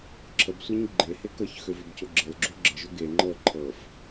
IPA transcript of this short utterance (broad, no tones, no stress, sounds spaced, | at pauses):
ǁʰ ə b sʷ e ɲ ɡ͡ǃ e h e k ɤ ç x ø v ø b cʰ o ɡ͡ǁ ə l ɡ͡ǁ o ɡ͡ǁ ə ʒ o ɡ e ŋ͡ǃ ɤ ǃʰ ɤ f